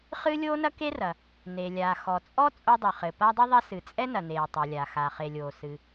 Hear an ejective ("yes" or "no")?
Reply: yes